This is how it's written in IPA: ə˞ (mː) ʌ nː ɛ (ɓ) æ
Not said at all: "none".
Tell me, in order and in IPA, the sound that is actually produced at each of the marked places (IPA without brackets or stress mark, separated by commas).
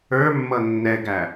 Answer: mː, ɡ